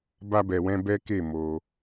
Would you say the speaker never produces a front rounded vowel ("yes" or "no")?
yes